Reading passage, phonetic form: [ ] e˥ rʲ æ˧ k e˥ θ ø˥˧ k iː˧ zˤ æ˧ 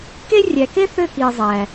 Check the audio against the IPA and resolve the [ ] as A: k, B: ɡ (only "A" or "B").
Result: A